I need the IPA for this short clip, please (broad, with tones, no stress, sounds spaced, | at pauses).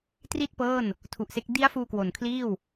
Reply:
t r i˥˩ t̚ p ɤː˥˩ n | tʰ u˨˩ ʔ s e˦˥ k̚ d i˦˥ a̯ f uː˧ k w o˨˩ n kʰ l iː˥˩ w